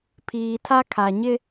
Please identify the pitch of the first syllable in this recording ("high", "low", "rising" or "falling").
low